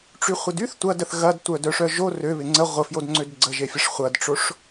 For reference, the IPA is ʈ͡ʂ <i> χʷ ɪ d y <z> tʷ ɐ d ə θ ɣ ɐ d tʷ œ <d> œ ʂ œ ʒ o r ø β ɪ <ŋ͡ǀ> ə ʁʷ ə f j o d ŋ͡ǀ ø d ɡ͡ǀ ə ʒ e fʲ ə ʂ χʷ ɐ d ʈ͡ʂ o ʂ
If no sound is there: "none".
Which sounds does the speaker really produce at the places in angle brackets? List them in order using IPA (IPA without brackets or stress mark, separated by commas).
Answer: y, θ, d, ŋ͡ǀ